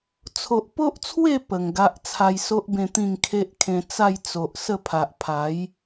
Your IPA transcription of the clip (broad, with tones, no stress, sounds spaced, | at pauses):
t͡sʰ o˨ ʔ p o˦ ʔ t͡sʰ w e˥˧ p ə˨˩ ŋ ɡ a˦ ʔ t͡sʰ a˧ j s o˦ ʔ b ẽ˧ t̪ ĩ˥˧ ŋ kʰ e˦ ʔ kʰ ẽ˧ t͡s a˥˧ j t͡s o˨ ʔ s ə˥˧ pʰ a˨ ʔ pʰ a˨˦ j